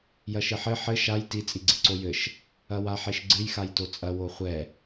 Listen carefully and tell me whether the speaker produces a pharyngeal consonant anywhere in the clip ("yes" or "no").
yes